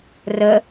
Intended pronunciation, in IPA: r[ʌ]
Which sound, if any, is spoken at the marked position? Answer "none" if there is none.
ə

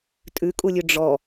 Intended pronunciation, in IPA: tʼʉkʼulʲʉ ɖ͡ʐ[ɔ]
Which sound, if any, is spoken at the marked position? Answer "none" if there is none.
ɔ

